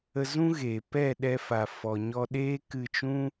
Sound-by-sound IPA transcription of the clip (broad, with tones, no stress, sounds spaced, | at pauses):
ə˧ z ũ˦ ɣ eː˨ p ɛ˦˨ ɗ ɛ˧ f a˨ f ɔ˨ ɲ ɔ˧ ɗ eː˦ k ɨ˧ t͡ʃ ũ˦